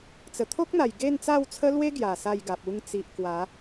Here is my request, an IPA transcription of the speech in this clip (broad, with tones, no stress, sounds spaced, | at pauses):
t͡s ə˨˩ t̪ʰ o˦ k̚ n̪ a˨˩ j ɡ e˥˧ n t͡s a˥˧ w t͡sʰ ə˦ l w e˦ ɡ j a˨˩ s a˥˧ j ɡ a˨ p̚ u˧ ŋ t͡s i˨ ʔ k w a˨˦